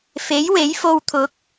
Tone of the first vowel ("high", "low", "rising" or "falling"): rising